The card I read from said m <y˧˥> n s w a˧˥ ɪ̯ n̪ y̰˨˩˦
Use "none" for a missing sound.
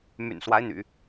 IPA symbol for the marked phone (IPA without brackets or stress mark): y̰˨˩